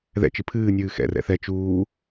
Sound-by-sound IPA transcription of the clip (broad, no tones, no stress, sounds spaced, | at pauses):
ð ɛ̰ t͡ʃ ɨ pʰ ɨː nʲ ɨː x ɛ̰ r ɛ̰ θ ɛ t͡ʃ uː